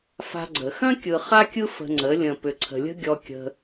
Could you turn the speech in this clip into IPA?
f a̤˧ ɡ͡ǀ ə˨ x ɐ̃˦ kʲ ɯ˨ χ a˦ kʲ ɯ˦ f ə̤˧ ŋ͡ǀ ə˨˦ lʲ ə̃˨ p ʏ˨ ǀʰ ə̤˨ lʲ ə̤˦ ɡʲ ɔ˧ kʲ ə̤˧

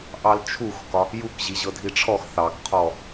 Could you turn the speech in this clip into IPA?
ʔ ɑ l t͡ʃʰ u x k ɒ | j u k ʑ i ʑ ɤ dʱ i ʈ͡ʂʰ ɔ x θ ɑ k qʰ ɔ

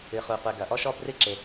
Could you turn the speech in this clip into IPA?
ɨ˩ χ u˩ qʷ e˩ ɡ ɐ˩ ʔ ɔ˥ ʃ ɔ˥ b r ɨ˥ ǁ e˩

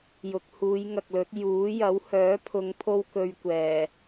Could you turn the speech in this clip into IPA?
j ʊ˨ k̚ h uː˨˧ j ŋ ɐ˨ k̚ l ɵ˨˥ t̚ j uː˨˥ j ɐ˨˥ w h œː˨˥ pʰ ʊ˨˧ ŋ pʰ o˥ w k ɵ˧ ɥ kʷ ɛː˨˩

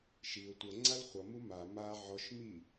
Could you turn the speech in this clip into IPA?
ʃ i ʊ̯ tʷ ə ŋ͡ǀ a l χʷ ʌ m u m a m a ʕ ɔ ʃ m i

